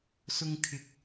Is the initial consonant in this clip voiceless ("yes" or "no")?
yes